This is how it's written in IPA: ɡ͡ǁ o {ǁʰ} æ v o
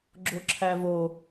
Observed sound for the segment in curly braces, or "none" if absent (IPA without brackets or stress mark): ǁʰ